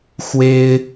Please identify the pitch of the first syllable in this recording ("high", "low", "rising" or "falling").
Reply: high